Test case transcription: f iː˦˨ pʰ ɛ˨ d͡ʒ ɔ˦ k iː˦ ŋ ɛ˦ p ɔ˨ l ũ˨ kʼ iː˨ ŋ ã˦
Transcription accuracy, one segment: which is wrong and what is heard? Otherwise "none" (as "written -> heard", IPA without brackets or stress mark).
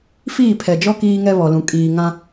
p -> β